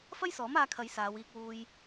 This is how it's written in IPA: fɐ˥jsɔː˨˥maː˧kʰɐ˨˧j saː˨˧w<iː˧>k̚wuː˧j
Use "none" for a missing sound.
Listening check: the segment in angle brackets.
iː˧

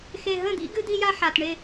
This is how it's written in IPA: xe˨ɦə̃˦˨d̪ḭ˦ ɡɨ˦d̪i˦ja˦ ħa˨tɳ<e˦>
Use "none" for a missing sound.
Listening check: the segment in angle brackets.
e˦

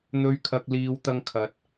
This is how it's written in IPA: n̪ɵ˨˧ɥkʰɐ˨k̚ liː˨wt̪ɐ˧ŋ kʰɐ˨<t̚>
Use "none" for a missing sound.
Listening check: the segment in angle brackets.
t̚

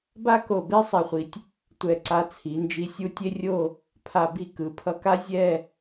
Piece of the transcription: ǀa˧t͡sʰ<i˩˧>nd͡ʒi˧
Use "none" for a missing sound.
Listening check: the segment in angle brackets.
i˩˧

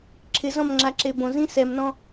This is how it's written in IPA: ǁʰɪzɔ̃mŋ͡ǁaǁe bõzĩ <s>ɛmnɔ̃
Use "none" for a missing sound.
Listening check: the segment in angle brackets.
s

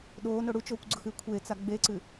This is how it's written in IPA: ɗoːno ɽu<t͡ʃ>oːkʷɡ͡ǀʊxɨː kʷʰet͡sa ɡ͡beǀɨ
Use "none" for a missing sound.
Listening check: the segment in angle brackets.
t͡ʃ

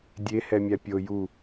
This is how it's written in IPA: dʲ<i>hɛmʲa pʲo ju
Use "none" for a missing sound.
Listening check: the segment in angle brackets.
e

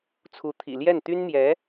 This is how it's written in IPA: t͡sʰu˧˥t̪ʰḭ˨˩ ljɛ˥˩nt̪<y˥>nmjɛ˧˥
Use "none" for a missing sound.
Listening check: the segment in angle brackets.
y˥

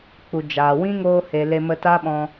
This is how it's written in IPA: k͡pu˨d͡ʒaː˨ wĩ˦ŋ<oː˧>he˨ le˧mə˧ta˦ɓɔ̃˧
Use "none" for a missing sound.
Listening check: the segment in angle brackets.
oː˧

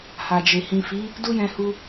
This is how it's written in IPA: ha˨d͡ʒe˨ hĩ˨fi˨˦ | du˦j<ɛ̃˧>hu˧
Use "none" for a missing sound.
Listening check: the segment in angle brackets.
ɛ̃˧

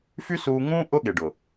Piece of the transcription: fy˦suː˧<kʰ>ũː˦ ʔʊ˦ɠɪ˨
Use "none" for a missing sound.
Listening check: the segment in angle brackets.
ŋ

